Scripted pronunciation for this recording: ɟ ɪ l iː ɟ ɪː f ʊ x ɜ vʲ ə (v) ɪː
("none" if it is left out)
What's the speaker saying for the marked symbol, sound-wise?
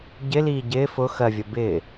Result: b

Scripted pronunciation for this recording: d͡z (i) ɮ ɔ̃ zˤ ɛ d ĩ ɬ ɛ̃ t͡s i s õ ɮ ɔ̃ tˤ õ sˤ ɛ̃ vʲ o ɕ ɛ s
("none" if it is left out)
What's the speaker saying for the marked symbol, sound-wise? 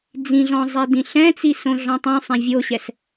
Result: ĩ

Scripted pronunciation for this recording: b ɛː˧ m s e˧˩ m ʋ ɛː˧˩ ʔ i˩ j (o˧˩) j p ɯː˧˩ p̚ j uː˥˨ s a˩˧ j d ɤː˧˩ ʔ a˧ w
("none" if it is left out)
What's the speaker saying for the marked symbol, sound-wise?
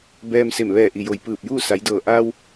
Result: o˩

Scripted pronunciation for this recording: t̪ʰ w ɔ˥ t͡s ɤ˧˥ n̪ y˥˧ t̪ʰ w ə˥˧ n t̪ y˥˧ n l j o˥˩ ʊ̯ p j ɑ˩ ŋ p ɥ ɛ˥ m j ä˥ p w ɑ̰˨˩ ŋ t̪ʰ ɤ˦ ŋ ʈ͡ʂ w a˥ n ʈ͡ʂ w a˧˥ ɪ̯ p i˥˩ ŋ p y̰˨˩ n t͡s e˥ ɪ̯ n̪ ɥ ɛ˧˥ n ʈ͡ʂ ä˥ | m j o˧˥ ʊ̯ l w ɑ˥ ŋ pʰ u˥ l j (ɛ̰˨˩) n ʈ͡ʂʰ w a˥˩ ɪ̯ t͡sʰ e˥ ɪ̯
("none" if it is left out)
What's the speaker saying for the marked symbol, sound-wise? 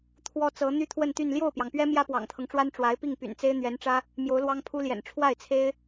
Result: ɛ̰˨˩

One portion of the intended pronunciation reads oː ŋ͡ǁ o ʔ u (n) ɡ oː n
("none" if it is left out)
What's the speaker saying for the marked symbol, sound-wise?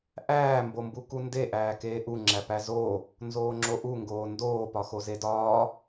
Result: ŋ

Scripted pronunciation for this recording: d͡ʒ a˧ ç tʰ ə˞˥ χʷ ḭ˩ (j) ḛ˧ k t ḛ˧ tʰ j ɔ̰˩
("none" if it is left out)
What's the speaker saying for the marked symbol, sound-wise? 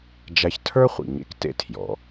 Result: ɲ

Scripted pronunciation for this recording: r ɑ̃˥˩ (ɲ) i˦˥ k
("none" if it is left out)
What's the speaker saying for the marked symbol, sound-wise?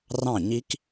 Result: ɲ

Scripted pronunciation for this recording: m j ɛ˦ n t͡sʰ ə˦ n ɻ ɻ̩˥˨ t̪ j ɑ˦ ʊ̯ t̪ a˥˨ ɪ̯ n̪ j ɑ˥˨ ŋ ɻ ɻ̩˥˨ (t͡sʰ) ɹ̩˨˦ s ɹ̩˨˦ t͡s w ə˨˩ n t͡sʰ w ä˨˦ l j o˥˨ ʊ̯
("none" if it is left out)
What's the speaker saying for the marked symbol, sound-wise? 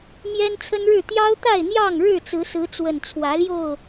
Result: t͡s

